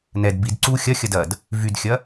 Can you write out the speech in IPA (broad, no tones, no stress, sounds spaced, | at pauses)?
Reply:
n ɛ d b i d ǀ u xʲ ɐ xʲ ɐ d ɐ d | v y d xʲ ɐ